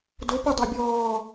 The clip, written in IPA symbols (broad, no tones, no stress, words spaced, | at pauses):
dopodˤa bʲɔː